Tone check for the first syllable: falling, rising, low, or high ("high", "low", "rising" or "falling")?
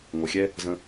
low